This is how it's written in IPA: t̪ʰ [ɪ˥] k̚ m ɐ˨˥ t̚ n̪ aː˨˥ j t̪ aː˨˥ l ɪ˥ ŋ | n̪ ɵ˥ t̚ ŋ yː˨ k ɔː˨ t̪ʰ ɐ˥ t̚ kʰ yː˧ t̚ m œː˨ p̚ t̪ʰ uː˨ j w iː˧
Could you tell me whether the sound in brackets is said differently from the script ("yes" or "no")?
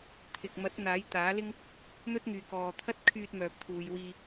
yes